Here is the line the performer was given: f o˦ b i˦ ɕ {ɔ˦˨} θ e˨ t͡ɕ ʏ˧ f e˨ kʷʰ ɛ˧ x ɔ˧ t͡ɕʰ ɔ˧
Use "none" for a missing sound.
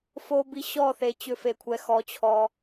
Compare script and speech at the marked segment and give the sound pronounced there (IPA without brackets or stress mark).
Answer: ɔ˦˨